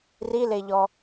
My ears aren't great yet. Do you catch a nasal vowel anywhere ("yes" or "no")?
no